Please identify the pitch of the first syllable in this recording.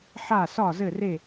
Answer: falling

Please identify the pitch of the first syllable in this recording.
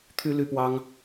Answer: high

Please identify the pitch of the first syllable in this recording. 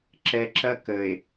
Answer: low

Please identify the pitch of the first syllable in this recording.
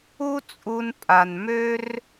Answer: high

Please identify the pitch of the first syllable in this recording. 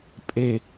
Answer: low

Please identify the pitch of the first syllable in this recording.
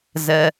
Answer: low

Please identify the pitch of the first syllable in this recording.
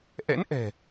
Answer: rising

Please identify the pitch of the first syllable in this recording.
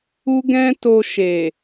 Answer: high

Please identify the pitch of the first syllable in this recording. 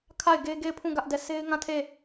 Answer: falling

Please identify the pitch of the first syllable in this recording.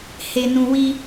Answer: high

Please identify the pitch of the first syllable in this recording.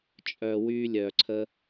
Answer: low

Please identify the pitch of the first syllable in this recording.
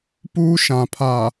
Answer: high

